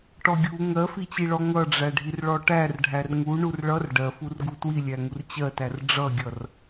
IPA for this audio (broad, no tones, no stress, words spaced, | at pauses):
ʈɔɡʲu ŋɜfit͡ɕiɭɔ ŋʌɖ͡ʐæɖʱir ɭɔʈærɖʱær ŋu ɳurɭʌr ɖɜfurɡu twilʲæŋur t͡ɕɜtær ɖ͡ʐʌɡʲʌr